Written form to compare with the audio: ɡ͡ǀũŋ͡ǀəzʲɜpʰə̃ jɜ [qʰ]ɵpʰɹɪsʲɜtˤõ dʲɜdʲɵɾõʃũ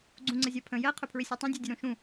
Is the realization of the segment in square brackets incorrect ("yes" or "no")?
no